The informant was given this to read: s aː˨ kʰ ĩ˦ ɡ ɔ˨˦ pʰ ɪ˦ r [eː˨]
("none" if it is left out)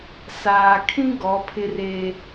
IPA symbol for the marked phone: eː˦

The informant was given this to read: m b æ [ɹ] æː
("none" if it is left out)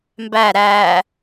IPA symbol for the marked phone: ɾ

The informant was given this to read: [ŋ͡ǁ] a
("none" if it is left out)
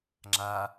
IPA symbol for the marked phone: ŋ͡ǁ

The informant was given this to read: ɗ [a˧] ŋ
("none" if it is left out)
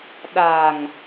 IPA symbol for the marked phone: a˨˩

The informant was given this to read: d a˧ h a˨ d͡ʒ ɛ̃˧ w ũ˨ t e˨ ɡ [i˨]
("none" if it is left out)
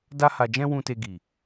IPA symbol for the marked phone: i˨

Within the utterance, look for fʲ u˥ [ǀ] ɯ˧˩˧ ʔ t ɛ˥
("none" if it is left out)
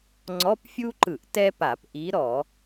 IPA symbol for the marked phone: ǃ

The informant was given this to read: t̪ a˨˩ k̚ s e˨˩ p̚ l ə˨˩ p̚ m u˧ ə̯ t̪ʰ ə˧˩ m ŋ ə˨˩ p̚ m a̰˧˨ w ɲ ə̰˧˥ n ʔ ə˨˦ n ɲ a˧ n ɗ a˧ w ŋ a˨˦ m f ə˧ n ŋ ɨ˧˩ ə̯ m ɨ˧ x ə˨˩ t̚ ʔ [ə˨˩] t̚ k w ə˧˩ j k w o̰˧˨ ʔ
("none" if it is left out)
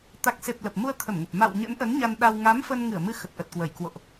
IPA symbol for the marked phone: ə˨˩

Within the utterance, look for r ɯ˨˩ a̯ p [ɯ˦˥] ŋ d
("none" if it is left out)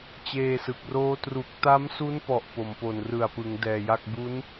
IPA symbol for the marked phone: ɯ˩˦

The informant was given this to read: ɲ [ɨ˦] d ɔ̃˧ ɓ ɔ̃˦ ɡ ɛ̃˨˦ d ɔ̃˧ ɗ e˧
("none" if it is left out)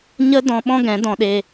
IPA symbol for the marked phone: ə˦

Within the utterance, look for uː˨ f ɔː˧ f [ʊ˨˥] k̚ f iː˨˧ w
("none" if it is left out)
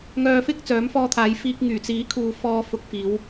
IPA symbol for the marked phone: ʊ˨˥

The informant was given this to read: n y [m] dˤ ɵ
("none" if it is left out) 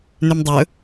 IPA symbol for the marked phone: m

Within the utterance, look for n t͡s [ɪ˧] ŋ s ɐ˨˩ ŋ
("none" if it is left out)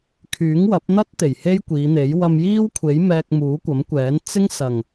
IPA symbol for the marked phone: ɪ˥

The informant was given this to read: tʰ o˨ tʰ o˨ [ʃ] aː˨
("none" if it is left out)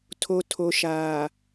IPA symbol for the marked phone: ʃ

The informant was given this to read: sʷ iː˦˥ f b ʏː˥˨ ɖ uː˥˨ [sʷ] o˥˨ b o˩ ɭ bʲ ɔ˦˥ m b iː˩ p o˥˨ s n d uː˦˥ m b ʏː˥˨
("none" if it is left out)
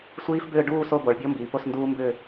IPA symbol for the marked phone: s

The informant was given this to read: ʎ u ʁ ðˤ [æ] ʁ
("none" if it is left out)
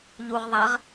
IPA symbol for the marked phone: æ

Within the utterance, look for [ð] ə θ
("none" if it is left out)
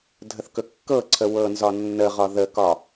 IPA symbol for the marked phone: dʱ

